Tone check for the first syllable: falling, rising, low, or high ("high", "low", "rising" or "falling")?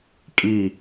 falling